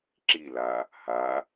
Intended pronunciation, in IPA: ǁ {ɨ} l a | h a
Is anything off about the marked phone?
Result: yes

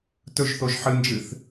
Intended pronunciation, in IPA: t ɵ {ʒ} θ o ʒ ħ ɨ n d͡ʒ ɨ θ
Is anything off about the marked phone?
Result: no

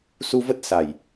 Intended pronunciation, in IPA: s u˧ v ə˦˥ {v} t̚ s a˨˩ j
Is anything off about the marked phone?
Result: yes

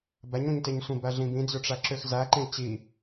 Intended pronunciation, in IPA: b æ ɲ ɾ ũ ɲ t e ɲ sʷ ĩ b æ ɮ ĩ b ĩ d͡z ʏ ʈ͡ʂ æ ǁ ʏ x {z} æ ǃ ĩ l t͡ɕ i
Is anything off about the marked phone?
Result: no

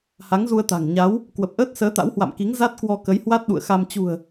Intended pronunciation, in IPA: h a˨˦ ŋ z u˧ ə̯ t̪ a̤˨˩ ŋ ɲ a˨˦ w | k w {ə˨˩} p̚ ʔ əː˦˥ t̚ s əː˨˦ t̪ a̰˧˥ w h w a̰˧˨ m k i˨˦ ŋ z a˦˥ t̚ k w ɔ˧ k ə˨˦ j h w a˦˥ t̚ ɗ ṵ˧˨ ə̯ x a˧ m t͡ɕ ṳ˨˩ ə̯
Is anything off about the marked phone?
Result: no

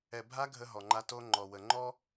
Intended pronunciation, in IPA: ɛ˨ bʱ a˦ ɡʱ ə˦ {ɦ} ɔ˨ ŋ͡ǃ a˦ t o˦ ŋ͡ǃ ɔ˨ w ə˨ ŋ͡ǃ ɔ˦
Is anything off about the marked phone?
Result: no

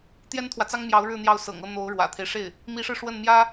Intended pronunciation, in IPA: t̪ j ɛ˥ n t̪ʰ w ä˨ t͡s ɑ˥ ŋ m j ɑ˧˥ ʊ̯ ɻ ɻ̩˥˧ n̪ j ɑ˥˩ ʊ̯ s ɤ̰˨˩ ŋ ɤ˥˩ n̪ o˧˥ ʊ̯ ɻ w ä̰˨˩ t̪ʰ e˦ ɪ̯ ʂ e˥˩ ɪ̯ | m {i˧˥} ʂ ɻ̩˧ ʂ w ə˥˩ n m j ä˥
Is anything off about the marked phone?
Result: no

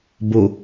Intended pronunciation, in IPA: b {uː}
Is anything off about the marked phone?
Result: yes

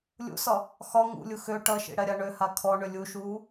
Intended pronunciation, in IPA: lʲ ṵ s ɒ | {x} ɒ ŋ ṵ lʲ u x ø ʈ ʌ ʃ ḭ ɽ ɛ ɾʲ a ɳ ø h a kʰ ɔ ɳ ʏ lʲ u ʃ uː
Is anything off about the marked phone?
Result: no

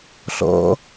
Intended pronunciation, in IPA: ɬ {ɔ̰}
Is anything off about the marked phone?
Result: no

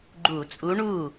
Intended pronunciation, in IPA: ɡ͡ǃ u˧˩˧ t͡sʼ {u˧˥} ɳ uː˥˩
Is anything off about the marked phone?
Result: no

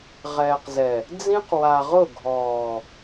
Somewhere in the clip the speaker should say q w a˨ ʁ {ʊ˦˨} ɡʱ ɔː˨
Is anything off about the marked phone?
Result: no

